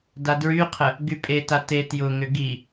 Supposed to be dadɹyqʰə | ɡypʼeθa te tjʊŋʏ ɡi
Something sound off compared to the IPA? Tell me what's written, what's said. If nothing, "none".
θ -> t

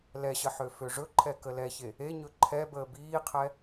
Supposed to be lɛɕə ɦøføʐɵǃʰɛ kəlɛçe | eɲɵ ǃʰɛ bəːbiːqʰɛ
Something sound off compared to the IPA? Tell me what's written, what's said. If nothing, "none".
ɦ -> ħ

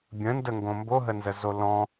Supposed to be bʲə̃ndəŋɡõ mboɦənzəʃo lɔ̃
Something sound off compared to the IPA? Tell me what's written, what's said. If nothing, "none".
ʃ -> z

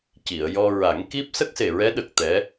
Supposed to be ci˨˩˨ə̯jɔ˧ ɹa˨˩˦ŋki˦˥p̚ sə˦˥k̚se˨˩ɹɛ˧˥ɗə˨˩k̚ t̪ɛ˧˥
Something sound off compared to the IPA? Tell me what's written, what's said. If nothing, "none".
none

